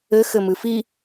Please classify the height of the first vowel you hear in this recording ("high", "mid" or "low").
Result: mid